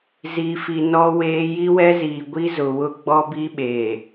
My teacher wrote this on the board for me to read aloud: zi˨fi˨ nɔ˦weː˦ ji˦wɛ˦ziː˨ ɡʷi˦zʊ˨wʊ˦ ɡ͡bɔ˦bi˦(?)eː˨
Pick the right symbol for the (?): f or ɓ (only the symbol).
ɓ